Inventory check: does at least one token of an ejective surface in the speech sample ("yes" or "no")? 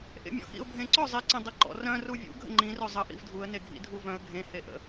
no